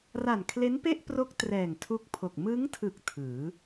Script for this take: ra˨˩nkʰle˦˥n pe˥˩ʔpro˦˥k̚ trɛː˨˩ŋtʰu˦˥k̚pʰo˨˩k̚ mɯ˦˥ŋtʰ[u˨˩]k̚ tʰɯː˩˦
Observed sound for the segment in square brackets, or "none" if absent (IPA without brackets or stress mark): ɯ˨˩